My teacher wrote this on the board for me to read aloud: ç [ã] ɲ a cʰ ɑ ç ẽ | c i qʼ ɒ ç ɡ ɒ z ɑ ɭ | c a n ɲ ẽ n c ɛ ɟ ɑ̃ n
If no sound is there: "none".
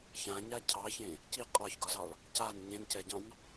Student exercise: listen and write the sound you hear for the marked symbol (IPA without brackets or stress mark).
ã